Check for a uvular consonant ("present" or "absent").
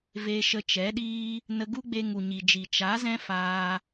absent